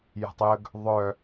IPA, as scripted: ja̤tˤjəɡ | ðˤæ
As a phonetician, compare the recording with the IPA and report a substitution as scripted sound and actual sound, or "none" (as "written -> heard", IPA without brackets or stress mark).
æ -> œ